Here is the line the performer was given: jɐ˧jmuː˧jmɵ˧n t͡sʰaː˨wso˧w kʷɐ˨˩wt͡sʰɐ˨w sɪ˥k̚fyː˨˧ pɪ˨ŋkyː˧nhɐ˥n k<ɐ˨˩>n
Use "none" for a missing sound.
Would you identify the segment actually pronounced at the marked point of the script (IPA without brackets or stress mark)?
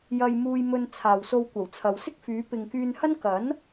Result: ɐ˨˥